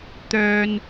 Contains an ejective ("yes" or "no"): no